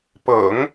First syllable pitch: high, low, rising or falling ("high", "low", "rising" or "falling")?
low